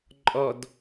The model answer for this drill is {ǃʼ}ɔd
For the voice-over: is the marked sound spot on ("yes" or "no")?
yes